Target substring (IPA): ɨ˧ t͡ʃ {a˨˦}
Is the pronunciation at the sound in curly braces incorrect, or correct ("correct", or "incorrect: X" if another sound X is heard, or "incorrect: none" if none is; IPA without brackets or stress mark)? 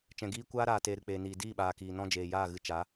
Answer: correct